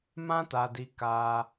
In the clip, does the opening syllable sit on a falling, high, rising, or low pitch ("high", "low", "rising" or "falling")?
high